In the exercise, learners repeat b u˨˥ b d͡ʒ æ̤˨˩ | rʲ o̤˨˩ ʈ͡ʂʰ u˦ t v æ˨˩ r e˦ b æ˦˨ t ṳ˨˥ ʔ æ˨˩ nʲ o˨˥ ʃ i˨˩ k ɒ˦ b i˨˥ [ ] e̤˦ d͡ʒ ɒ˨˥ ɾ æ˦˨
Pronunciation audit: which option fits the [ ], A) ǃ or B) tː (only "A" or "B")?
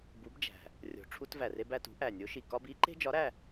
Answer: A